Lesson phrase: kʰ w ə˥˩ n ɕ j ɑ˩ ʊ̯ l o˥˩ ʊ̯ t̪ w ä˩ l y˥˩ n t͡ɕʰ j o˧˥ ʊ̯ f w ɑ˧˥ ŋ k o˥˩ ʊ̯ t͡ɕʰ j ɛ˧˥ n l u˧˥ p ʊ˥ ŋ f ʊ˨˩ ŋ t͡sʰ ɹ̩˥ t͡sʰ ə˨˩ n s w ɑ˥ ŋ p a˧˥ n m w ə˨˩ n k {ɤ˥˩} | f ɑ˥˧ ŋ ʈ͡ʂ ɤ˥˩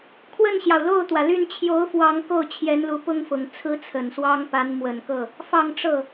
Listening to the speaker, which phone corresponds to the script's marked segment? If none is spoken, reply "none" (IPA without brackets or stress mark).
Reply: ɤ˥˩